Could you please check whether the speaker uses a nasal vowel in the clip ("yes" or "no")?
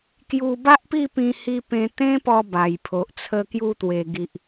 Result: yes